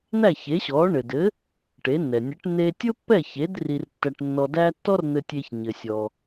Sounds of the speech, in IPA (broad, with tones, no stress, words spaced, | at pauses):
n̪æ˥˩çe˩˥ɕɔ˩˥ ɳɘ˩dɘ˩˥ | ʈe˩˥nːɛ˩ nʲɘ˩˥ʈ n̪e˧tʲʊ˥pːɛ˥˩çe˩˥d ri˧rtːæ˧ʈnːɔ˧dæ˥ tːɔ˥r n̪ɘ˧tʲe˧çɲɘ˩sʲɔ˩